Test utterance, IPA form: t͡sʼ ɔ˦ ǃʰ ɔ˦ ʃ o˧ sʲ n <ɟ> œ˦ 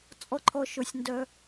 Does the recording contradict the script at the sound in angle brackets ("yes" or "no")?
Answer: yes